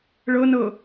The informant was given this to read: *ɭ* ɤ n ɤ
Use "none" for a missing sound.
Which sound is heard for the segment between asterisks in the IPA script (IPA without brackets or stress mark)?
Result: ɭ